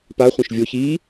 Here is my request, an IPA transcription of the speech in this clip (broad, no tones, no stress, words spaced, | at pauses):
pa χʷẽʃvʲo çi